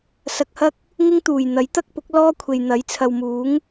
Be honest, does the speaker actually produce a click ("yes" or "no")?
no